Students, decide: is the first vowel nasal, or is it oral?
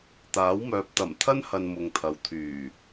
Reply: oral